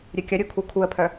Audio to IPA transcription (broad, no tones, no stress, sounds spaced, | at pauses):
ɾʲ ø kʲ ɐ ɾʲ u kʰ u kʰ u ə̯ pʰ œ